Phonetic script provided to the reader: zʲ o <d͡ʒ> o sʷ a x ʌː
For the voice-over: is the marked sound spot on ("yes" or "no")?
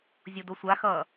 no